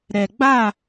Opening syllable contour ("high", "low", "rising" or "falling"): low